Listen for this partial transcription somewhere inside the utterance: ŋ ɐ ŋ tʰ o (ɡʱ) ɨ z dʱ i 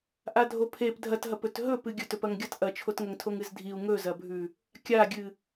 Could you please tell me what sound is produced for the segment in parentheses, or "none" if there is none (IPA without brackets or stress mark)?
ŋ